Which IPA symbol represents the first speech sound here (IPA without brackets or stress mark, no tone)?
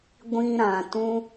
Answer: ɡʷ